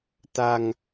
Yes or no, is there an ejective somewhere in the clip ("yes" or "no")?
no